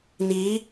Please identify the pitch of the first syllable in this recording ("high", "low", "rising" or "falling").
rising